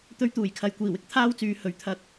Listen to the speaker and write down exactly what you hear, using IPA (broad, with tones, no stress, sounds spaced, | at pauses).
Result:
t̪ ɵ˧ ɥ t̪ uː˨˩ j kʰ ɐ˨ j kʷ iː˨˩ w ɪ˨˥ k̚ t̪ʰ aː˥ w t͡s yː˨˧ h ɵ˨˥ ɥ t̪ʰ ɐ˧ k̚